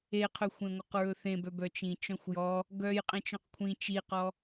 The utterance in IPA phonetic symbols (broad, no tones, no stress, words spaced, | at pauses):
eqʰɵxʷẽ ŋʷœqɹɵθẽbœ bœt͡ʃĩ t͡ʃɔ̃xʷjɔ | ɡœj qʼẽt͡ʃɔ̃qkʷʰĩ t͡ʃiqɔ